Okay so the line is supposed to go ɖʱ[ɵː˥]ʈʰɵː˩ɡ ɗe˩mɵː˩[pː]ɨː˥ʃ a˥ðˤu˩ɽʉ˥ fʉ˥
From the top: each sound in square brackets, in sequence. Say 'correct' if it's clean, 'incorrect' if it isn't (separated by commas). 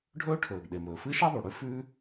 correct, incorrect